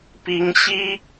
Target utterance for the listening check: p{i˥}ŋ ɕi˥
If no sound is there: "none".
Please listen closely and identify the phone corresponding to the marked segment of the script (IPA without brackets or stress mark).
i˥